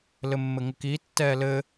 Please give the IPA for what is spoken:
l ɘ mː ɘ ŋ ɘ k iː tː ɛː l ɘ

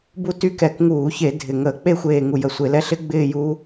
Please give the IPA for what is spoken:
b u˥˧ t y˦˥ k ɛ˧˩˧ k ŋ uː˧˩˧ ç e˧˩˧ dʱ ɪ˧˩ ŋ əː˧˩˧ k͡p e˥˧ xʷ eː˧˩ ŋ u˧˩ j ə˧˩ sʷ e˧˩˧ l ɛ˦˥ ɬ ɪ˦˥ ɡ͡b ɪː˥˧ j uː˦˥

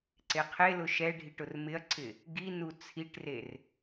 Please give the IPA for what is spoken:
ǀ e qʰ e l ʊ ʃ ɛ ɖʱ i ʈ ʊ r m ɪ ɐ̯ ǀʰ ɪ | ɡ i n u t͡sʰ i ʈ r e r

